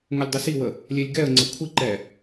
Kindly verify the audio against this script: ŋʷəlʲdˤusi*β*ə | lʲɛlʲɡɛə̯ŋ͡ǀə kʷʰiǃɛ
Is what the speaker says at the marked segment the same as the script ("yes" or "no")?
no